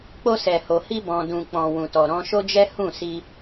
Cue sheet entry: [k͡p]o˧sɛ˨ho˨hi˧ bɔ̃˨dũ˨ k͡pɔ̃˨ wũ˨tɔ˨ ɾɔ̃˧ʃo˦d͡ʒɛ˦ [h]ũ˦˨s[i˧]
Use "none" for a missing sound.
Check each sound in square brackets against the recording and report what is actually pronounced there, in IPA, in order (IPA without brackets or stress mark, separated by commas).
k͡p, h, i˧